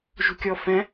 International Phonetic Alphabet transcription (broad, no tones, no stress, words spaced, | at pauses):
ʒṳkʲɔfɛ̃